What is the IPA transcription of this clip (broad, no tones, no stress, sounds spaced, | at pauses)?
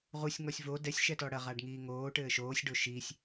ʁ u sʲ ŋ ɔ sʲ v o d ɛ sʲ ʃ ɛ t ɔ ɽ ɐ ʁ a ɖ ŋ iː ŋ oː ʈ ɘː ʃ oː sʲ ɖ o ʃ i sʲ